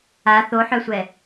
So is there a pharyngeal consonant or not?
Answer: yes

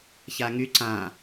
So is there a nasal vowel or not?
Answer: yes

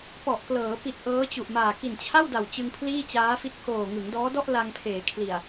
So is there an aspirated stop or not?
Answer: yes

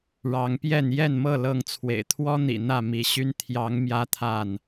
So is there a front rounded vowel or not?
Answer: yes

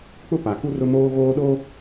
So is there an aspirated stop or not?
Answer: no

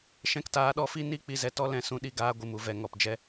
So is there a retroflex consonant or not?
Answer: no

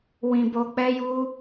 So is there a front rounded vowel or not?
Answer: no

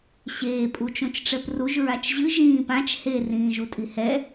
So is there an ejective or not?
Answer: yes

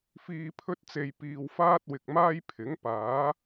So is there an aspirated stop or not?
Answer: yes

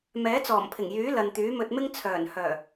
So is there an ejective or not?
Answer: no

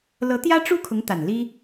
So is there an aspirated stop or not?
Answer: yes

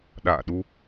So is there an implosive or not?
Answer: yes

